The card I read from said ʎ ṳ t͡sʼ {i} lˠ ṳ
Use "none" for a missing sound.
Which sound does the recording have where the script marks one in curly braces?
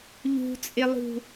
ɪ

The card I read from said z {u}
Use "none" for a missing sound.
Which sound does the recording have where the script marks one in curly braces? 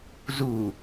u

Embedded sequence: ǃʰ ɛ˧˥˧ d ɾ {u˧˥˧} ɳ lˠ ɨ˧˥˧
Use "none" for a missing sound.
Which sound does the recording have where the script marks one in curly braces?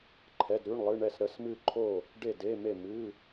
ʉ˧˥˧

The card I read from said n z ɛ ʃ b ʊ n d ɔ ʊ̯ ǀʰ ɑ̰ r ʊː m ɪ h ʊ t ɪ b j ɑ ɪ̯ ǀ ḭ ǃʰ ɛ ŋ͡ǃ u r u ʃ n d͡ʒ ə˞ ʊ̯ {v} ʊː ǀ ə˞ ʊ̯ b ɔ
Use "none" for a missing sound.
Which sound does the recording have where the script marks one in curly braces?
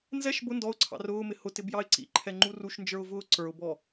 v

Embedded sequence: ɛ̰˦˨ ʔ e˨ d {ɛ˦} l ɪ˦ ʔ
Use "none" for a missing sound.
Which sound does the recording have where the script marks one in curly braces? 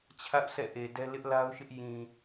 ɛ˦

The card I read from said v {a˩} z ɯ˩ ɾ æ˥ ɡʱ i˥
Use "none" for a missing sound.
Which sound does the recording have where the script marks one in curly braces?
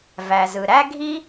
æ˩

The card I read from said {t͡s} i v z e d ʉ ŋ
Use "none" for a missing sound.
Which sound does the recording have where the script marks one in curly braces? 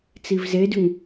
t͡s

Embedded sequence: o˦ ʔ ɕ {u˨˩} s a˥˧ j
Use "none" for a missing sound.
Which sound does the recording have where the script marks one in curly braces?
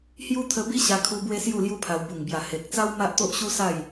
u˦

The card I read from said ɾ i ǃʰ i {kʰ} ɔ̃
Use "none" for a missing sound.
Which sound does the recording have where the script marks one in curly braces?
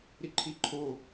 ǃʰ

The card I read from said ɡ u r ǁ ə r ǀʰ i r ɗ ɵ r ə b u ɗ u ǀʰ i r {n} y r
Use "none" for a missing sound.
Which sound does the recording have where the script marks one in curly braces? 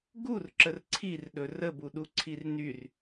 n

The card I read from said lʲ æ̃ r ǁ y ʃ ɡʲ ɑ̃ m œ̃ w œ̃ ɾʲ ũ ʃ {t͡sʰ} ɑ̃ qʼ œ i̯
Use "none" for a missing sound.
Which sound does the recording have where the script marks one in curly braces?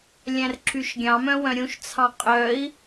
t͡sʰ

